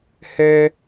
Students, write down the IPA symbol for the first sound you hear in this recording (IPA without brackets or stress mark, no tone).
h